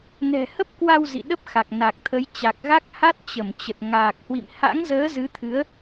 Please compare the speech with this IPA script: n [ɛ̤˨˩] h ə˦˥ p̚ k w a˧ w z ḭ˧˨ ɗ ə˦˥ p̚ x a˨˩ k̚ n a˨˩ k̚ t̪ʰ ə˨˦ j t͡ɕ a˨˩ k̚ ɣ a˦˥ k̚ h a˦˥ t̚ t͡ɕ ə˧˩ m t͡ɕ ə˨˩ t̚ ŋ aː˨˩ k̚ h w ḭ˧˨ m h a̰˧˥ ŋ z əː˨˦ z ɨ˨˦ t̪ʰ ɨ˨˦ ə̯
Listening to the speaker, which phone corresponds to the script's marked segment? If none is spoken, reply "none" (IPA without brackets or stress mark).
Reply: ɛ̤˨˩